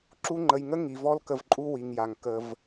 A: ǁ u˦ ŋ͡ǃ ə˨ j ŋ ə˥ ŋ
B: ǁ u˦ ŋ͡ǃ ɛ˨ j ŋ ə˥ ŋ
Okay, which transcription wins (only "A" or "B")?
A